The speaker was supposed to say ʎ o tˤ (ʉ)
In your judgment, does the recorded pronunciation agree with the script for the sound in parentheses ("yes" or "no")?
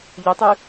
yes